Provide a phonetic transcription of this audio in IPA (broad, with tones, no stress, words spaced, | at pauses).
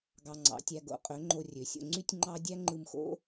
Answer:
ɡɑ˧ŋ͡ǀɑ̰˨˦tʲæ˧ ɡo̰˧qʼø˨˦ ŋ͡ǃo˧rʲø˨sʲo̰˧ ŋ͡ǀy˦tʲŋ͡ǃɑ˦ dʲæ˦ŋ͡ǃɯ˧mxo̰˦